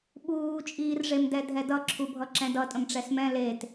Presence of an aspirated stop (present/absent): present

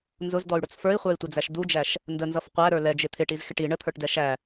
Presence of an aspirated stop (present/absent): present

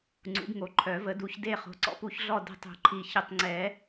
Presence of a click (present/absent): present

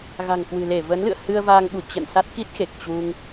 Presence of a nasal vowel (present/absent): absent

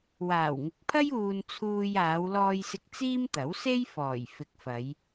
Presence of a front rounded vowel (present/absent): absent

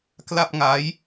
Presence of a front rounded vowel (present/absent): absent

